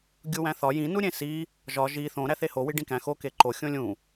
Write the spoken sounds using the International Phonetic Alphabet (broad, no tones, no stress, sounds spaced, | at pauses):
ɡʲ u w æ̃ θ ɒ j ĩ n u ɾʲ ẽ s i | ʒ ɒ ʒ i θ õ ɾ æ θ e h o w i ɖ ĩ k æ̃ x o k e ǃ o xʲ õ lʲ ũ